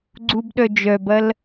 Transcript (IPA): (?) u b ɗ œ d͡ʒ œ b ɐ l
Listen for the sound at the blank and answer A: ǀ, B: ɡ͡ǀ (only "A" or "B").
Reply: B